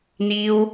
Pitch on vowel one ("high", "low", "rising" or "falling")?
high